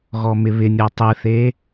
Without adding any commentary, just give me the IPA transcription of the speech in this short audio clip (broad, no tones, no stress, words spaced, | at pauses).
ɣɔmɪβɪnʲɔ tˤɨθe